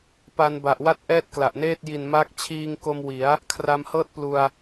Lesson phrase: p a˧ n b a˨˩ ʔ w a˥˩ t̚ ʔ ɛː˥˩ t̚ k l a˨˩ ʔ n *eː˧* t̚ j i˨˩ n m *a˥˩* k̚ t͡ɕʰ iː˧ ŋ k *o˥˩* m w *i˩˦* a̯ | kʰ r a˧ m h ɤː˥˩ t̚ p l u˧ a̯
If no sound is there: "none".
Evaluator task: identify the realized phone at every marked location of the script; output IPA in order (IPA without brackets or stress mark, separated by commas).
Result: eː˥˩, a˦˥, o˧, i˩˦